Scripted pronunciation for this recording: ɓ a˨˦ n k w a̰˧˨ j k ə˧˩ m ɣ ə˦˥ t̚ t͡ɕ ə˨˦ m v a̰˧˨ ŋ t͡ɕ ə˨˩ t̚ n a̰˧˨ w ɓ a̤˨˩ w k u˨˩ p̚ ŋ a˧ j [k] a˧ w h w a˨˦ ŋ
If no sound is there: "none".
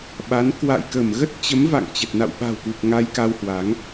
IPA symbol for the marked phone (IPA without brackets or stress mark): k